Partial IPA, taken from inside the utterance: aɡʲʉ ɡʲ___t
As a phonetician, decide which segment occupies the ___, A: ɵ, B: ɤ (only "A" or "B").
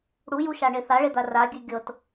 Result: B